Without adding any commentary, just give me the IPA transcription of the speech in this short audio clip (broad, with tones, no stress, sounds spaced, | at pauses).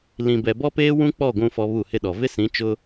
l ĩ˨ b ɛ˨ b ɔ˦ p eː˦ w ũ˦ k͡p ɔ˦˨ ɡʷ ũ˦ f ɔ˦ β u˦˨ h ɪ˦ ɗ ɔ˨ v ɪ˦ s ĩ˨˦ t͡ʃ ʊ˦